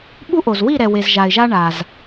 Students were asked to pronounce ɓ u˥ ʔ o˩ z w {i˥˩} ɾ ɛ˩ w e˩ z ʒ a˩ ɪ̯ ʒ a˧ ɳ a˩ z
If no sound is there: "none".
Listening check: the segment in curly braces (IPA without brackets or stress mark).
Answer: i˥˩